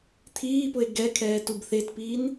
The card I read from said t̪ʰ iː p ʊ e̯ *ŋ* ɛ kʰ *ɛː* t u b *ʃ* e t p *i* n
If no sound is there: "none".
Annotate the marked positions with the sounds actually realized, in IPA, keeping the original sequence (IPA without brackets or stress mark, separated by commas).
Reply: ɡ, ɛː, θ, iː